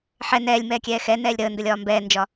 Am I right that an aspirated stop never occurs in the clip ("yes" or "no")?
yes